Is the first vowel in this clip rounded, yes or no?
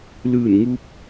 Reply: no